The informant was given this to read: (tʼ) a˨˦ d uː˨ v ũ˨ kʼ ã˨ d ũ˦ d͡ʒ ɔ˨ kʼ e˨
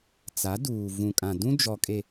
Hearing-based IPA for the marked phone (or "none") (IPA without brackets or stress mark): t͡s